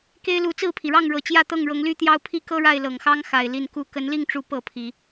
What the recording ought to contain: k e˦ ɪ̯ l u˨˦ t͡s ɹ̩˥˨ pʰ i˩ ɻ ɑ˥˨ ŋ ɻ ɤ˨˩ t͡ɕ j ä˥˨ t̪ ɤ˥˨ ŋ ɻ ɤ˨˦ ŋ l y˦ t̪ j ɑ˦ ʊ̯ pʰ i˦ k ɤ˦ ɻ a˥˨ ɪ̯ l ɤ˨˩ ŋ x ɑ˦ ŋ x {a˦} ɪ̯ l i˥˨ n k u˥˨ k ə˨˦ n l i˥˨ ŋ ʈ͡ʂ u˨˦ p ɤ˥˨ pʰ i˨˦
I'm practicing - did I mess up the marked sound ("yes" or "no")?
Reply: yes